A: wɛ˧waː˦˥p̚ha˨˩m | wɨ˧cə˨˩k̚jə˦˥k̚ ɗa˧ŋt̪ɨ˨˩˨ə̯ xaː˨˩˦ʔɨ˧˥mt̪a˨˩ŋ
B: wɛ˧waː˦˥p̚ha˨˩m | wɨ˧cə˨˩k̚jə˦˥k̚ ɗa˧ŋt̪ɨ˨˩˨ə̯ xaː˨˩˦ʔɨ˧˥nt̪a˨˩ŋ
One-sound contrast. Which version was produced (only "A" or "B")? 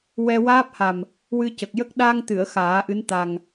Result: B